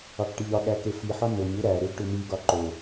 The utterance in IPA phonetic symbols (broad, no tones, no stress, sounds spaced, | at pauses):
ɒ k ʈ i ʎ ɒ ɠ æ k e f i ħ ɒ n o ɲ u ɾ æ ɾ e ɡ ʈ u n i ɡ ɒ ǃ o